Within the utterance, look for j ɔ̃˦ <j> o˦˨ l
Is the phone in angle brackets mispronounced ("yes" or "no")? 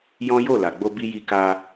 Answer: no